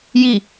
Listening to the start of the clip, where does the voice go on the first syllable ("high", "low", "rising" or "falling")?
falling